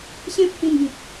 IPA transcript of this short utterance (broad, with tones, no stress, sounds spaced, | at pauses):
ɕ ẽ˦ p̚ h ĩ˧ n b ĩ˨ k̚